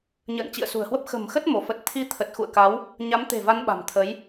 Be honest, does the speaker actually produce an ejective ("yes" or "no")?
no